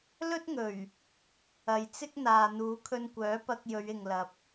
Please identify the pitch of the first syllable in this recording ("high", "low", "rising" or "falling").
high